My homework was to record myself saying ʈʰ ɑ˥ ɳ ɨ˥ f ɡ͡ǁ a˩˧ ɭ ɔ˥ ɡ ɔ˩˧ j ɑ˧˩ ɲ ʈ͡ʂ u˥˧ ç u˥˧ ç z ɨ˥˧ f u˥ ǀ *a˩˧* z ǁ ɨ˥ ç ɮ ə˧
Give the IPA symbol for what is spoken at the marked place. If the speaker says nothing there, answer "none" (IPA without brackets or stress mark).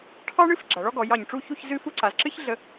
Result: a˩˧